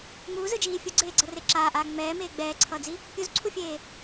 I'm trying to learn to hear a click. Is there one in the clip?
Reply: yes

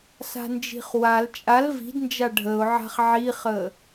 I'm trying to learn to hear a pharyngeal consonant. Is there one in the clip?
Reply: yes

